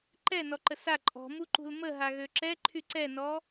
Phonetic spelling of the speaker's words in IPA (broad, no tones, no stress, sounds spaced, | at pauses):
ǃ ɛ n ɔ ǃ ə s a ǃʼ ɔ̤ m u ǃ ṳ l m ə ɦ a ɣ ø ǁ ɛ ǃʰ y ǀ ɛ n ɔ